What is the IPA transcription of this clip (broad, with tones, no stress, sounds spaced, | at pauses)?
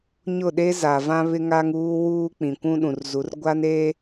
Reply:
ɲ ʊ˦˨ ɗ e˦ z a˨ v ã˦ β ɪ˦ ŋ a˦ ŋ uː˦ w uː˦ k͡p ĩ˨ kʷ ũ˦ ɗ ũ˨ r z u˨˦ r ɡʷ a˦ n e˦